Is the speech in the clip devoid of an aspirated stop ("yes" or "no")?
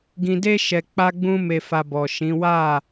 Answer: yes